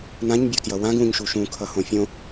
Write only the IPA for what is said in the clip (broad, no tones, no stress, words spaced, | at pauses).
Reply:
nãɲbʲotjʌ wãɡ ũɲʃu ʃũkʰʌhõ fʲõ